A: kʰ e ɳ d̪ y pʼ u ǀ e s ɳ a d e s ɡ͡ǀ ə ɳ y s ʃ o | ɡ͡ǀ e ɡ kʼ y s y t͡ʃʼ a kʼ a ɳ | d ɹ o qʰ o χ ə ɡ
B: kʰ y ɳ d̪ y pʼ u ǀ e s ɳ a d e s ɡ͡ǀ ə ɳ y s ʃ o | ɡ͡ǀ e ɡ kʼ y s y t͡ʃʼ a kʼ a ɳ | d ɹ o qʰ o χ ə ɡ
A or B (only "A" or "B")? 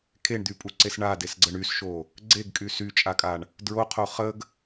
A